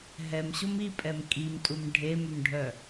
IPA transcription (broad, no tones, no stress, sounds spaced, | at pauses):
ɦ ɛ m ɕ o m i pʼ ɛ m kʼ i m tʼ u m ɖʱ e m ʏ m ɖʱ œ